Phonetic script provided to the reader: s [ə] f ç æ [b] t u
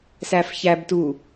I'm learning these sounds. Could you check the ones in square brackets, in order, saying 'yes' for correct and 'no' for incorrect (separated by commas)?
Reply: no, yes